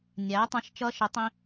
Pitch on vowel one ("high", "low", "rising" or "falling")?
rising